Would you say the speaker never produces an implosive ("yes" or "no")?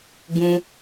yes